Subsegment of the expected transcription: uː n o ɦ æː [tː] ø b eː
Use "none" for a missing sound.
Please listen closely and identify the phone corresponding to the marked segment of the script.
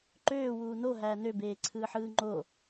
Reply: n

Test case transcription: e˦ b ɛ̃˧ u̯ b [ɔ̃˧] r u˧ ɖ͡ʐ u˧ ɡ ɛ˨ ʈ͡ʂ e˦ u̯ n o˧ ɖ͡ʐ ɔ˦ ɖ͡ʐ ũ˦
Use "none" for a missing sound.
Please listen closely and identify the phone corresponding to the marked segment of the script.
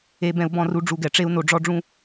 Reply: ɔ̃˦˨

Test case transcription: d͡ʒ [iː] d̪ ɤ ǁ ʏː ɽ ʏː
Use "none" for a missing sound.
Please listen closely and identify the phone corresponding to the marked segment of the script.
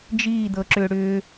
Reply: iː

